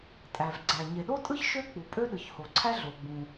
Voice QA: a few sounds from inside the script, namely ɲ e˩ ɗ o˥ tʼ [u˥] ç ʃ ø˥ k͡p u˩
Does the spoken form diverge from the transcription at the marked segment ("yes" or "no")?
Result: yes